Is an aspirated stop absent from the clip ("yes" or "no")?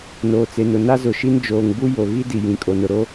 yes